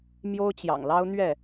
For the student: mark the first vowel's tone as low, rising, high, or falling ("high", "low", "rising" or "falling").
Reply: high